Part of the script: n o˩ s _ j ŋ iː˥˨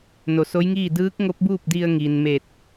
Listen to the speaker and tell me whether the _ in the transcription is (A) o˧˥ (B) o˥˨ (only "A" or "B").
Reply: A